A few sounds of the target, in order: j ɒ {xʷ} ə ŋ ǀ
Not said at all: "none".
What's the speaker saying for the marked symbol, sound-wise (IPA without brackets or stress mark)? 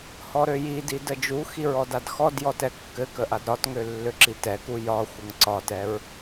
xʷ